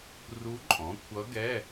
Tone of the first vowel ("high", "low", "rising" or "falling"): rising